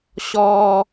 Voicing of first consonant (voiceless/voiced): voiceless